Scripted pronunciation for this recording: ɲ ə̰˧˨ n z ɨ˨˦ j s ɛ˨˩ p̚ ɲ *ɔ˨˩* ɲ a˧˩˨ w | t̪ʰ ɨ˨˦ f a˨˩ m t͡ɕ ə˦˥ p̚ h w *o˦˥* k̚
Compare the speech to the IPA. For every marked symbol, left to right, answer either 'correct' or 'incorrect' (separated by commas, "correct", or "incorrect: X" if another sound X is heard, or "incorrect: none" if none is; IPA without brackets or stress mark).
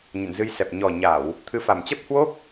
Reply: correct, correct